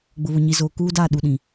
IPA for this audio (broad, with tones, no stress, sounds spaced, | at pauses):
ɡ͡b ʊ˨ β ʊ˨ ɲ i˨ z oː˨ k uː˦ d aː˦˨ ɗ u˨ ɗ ĩ˨